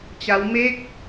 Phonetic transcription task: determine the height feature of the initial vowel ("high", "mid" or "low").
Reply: low